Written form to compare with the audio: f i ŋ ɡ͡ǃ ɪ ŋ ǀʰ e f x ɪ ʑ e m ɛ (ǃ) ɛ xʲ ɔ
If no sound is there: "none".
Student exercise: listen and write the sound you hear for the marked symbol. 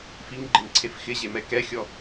k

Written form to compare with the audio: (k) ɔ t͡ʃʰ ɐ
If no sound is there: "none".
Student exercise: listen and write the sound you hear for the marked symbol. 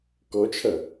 k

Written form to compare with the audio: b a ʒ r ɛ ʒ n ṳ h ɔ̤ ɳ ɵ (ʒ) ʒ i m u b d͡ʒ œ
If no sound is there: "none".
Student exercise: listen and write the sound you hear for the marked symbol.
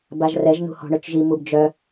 t͡ʃ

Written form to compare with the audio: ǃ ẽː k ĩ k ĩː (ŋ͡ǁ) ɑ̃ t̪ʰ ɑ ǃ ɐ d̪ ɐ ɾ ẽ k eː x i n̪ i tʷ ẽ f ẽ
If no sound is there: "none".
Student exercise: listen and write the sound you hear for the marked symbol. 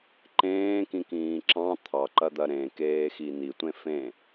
ǁ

